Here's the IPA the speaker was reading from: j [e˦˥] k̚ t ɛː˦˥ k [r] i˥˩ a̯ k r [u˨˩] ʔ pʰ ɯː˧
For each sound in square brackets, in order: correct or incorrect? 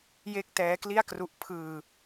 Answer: incorrect, incorrect, incorrect

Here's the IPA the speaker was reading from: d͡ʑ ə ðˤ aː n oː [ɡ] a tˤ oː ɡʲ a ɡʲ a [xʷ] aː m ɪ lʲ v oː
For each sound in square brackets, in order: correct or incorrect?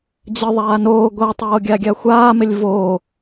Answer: incorrect, correct

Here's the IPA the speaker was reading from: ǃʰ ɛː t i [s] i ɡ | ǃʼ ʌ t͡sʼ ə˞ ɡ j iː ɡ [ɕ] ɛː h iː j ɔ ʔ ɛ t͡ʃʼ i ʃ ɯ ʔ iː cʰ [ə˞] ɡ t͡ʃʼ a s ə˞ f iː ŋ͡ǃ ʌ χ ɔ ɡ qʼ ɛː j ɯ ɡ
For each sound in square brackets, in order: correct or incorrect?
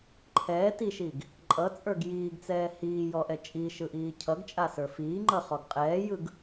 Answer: incorrect, incorrect, incorrect

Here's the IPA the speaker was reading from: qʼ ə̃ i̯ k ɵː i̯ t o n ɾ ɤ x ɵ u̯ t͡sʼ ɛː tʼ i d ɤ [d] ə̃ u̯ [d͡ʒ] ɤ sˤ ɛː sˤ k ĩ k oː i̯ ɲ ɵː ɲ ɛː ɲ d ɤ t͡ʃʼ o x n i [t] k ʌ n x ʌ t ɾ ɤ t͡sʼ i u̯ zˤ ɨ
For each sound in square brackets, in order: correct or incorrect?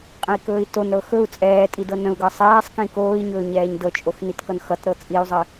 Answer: incorrect, incorrect, correct

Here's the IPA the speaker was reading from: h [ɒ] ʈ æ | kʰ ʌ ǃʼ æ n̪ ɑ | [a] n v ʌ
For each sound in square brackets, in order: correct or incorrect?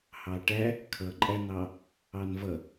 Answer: incorrect, incorrect

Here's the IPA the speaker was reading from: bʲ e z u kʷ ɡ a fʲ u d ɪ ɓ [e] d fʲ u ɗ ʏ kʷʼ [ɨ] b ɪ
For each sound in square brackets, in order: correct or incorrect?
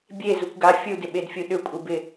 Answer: correct, correct

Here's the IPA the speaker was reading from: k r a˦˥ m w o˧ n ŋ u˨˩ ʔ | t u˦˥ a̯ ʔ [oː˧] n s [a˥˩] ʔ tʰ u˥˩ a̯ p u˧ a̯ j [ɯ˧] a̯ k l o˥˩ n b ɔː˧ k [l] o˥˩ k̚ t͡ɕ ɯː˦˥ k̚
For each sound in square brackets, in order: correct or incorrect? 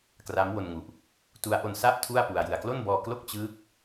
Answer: incorrect, correct, correct, correct

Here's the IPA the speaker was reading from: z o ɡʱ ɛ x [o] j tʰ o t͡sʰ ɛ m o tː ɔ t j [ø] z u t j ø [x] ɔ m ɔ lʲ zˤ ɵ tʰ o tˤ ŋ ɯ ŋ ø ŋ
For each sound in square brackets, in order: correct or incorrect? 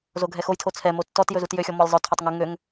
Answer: correct, incorrect, incorrect

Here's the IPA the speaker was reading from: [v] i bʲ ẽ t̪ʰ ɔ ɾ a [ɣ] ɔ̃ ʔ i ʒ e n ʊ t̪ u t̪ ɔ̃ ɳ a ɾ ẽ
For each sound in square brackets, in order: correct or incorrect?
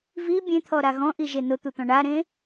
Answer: correct, correct

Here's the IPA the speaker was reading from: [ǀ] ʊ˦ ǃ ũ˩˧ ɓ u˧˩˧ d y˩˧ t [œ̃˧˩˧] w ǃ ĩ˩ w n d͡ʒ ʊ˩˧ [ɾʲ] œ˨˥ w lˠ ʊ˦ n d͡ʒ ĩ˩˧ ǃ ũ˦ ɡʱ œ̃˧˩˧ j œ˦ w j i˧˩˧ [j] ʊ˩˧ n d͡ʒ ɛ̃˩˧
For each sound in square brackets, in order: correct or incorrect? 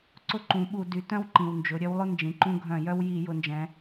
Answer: correct, incorrect, correct, correct

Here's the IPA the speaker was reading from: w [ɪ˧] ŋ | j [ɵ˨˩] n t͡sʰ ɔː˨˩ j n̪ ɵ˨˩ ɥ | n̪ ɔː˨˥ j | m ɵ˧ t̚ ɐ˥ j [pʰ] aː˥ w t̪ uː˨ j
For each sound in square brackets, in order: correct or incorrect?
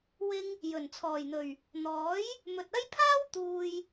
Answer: correct, correct, correct

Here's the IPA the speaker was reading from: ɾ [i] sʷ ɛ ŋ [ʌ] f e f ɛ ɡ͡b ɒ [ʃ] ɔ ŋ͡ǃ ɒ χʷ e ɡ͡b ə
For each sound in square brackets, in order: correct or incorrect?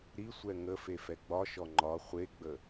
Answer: correct, incorrect, correct

